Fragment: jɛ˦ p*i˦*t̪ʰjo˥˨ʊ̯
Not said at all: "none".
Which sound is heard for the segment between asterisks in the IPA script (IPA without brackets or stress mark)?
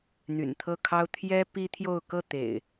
i˦